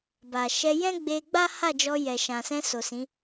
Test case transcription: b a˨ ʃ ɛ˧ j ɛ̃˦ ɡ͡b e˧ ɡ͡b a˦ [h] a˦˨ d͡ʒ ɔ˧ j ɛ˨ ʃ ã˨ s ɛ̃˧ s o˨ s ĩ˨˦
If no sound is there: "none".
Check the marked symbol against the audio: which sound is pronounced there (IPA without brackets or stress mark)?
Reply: h